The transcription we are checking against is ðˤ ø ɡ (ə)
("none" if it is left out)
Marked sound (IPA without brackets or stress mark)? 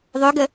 ə